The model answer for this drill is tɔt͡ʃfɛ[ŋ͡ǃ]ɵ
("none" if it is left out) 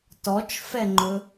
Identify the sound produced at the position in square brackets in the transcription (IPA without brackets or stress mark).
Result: ŋ͡ǃ